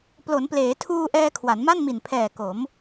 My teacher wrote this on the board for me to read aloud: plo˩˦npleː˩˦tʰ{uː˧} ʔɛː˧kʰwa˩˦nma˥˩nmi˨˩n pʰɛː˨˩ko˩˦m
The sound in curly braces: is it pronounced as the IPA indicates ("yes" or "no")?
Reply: yes